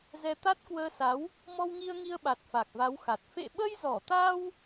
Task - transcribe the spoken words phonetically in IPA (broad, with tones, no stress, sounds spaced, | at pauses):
z ɛ˧ t̪ a˦˥ t̚ k w əː˧ s a˨˦ w | m ɔ˧ w ŋ i˧ ə̯ ŋ i˧ ə̯ ɓ a˨˩ t̚ f a˨˩ k̚ v a˨˦ w x a˨˩ t̚ f ḛ˧˨ ɓ ə˧ j z ɔ˧˩ t̪ a˧ w